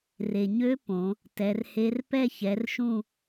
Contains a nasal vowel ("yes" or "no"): yes